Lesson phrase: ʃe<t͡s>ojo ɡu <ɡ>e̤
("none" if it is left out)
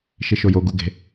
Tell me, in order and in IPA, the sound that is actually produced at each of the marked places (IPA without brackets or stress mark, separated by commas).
ʃ, ɡ